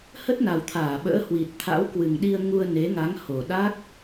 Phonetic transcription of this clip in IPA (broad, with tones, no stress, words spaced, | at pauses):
hə˦˥t̚na˨˩wt̪ʰaː˧˩ɓə̰ː˧˥ hwi˨˩t̚t̪ʰa̰˧˥wkwɨ˨˩ŋɗi˧ə̯ ŋu˧ə̯ne˨˦ŋa˨˦ŋ ho˨˩ɗa˦˥k̚